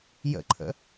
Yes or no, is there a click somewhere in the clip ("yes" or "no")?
yes